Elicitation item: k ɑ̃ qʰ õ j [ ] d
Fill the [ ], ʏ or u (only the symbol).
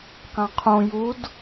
u